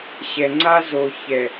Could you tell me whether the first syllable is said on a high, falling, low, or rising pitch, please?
low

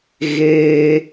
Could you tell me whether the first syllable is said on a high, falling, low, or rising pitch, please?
high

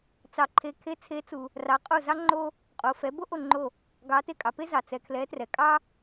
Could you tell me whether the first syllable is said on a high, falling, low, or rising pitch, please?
low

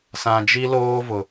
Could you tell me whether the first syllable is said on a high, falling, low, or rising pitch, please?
low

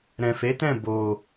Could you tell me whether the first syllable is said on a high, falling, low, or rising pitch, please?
low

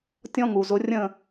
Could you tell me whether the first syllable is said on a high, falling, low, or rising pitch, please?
high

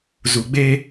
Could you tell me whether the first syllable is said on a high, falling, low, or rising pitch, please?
low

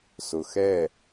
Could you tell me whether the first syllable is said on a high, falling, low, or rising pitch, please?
low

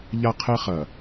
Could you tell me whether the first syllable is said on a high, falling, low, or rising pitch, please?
high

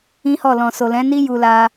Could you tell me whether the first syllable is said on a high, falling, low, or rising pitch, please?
high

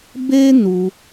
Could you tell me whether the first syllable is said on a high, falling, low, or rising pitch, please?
high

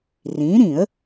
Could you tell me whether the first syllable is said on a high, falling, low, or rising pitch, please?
rising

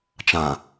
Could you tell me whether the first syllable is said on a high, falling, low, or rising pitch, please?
low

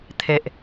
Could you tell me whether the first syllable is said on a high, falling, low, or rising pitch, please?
low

